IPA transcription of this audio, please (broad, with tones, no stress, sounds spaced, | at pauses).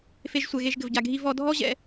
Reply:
f e˨ ʒ sʷ ɛ˩ ɣ e˨ ʒ ɡ ɘ˩ v ɟ a˩ ɡʱ i˨ v ɔ˨ dʱ ɔ˦ ʑ ɛ̰˨